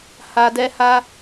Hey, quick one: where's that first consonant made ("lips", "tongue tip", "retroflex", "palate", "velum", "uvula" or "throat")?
throat